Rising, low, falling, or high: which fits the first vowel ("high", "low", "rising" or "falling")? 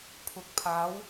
low